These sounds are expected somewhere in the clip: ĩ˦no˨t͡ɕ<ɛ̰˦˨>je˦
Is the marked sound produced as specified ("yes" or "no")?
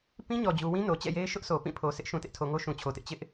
yes